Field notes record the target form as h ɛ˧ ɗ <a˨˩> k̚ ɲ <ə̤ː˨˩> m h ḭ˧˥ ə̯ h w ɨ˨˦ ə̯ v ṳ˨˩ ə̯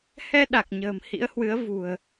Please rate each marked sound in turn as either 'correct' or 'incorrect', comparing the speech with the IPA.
correct, correct

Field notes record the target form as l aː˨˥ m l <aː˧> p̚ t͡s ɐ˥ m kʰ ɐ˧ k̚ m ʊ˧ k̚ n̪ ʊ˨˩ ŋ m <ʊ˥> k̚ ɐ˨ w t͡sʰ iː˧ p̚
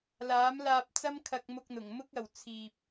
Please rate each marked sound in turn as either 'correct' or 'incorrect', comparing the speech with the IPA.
correct, correct

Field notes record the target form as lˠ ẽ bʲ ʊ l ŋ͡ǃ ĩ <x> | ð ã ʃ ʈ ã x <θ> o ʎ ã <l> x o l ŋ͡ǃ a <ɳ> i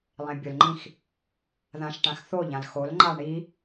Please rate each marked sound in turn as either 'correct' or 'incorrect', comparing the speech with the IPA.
correct, correct, correct, correct

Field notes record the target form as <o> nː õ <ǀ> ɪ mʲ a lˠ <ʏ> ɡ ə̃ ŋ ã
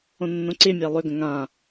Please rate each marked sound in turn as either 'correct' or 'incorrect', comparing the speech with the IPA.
incorrect: õ, correct, correct

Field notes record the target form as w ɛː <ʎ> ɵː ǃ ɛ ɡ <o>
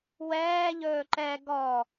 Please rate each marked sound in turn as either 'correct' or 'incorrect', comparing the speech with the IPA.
correct, incorrect: ɔ

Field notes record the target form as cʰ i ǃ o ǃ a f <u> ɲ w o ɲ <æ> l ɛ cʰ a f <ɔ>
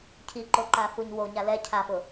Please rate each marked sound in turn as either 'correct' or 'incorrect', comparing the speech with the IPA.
correct, incorrect: a, incorrect: ʊ

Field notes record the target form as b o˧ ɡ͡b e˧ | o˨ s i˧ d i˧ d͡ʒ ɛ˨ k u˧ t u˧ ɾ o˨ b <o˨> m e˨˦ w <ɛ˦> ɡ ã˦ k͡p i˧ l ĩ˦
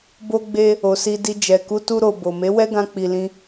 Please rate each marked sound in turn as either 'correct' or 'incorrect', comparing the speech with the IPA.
correct, correct

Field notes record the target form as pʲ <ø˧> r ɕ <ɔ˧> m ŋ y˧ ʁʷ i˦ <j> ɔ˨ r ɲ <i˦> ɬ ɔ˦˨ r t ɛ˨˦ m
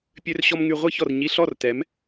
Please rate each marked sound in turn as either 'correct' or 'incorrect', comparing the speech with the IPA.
correct, correct, incorrect: ç, incorrect: i˧

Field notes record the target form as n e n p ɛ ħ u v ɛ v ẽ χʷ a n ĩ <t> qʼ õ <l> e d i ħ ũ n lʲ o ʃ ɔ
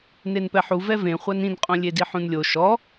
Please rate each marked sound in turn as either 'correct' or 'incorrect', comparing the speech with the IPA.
incorrect: n, incorrect: lʲ

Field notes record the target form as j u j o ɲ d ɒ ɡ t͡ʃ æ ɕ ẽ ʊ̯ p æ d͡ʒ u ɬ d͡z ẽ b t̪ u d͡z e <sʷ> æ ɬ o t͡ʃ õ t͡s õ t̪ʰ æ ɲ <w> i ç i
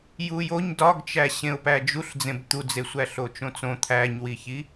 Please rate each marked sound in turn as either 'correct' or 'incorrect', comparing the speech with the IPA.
correct, correct

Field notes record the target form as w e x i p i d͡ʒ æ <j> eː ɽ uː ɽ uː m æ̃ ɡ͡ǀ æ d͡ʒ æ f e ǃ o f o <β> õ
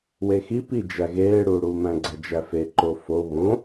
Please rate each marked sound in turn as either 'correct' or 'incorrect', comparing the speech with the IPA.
incorrect: ɣ, correct

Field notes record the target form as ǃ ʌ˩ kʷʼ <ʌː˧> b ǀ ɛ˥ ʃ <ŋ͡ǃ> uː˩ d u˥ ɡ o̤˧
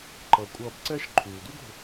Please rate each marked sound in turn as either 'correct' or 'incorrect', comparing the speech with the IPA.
correct, incorrect: ǃʰ

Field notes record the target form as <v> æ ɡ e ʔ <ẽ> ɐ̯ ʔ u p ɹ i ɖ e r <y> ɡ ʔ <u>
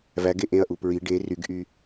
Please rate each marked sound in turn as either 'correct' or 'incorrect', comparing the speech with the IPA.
correct, correct, correct, incorrect: y

